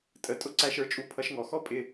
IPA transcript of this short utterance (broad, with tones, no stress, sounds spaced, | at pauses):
tʼ ə˧ tʼ ʊ˥ ǀ æ˧ ʃ ə˞˥ t͡ʃʼ u˧ pʰ ʌ˧ ʃ ŋ ɔ˩ x ɔ˥ pʼ ɪ˧